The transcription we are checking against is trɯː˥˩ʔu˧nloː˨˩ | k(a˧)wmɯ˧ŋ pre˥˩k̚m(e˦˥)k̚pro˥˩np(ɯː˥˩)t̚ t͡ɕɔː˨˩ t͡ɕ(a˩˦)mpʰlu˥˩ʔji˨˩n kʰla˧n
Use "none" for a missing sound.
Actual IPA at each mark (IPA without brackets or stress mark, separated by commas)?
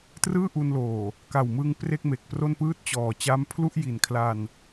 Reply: a˨˩, e˨˩, ɯː˥˩, a˦˥